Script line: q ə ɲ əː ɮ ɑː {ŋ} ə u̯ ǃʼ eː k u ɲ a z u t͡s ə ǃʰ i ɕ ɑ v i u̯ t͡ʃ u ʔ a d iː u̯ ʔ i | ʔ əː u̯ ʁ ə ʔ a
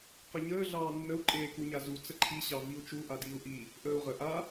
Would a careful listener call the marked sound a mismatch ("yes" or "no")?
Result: yes